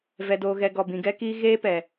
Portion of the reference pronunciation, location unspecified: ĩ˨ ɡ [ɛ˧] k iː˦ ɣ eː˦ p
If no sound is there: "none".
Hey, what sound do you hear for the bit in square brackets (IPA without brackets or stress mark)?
ɛ˦